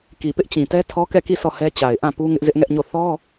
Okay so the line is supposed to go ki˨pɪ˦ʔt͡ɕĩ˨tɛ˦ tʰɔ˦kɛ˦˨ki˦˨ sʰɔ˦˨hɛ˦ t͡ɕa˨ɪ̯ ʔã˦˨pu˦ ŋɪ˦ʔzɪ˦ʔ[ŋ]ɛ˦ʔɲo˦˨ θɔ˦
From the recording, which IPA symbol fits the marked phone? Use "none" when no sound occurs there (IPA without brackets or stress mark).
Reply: ŋ